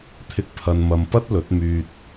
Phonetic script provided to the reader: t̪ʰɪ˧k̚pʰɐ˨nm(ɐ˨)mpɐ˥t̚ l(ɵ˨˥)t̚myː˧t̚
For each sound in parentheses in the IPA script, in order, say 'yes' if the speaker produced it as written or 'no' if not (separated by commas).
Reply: yes, yes